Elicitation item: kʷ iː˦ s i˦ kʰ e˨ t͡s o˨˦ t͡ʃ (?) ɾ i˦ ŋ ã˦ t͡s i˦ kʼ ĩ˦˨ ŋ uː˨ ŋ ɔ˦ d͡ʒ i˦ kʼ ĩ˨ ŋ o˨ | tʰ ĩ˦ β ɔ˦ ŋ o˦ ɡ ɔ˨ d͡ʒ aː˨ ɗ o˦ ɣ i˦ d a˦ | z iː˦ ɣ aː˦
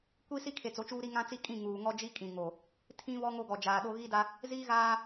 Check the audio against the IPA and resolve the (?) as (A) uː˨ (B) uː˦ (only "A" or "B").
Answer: B